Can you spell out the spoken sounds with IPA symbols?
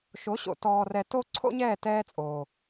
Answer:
ʃ o˨˦ ɕ o̰˨ t ɔː˧ r ɛ˧ t o˦ ǀʰ o̰˦ ɲ ɛː˦˨ t ɛː˦ t͡sʼ oː˨

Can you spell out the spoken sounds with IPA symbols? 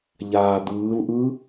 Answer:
ʎ aː d̪ ɯː l ʔ ɯ

